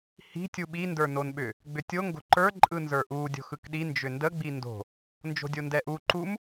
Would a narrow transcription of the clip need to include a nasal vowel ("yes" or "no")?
no